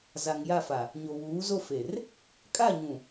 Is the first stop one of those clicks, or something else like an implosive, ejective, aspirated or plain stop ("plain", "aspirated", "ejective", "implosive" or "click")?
ejective